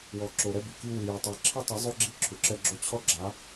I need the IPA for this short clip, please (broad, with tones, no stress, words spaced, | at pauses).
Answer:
wɔ˨ǁo˨ ɾɛ˦bi˨ki˦ wɨ˨jɛ˨tˤe˨˦ ǁʰɘ˦tˤɐ˨˦ zˤo˦ɡ͡ǁi˦ ǁʰu˨ǁɛ˦ɡ͡ǁo˦ t͡ɕʰɔ˦ɡ͡ǁa˨˦